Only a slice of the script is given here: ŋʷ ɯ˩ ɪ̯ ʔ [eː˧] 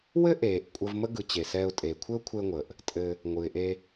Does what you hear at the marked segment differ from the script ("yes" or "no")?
yes